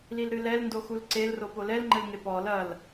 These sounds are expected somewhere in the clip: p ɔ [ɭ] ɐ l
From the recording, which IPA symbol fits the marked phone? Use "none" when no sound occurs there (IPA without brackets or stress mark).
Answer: l